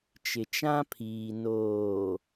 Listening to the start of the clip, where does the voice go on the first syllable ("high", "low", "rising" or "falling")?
low